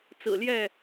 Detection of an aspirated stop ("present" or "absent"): absent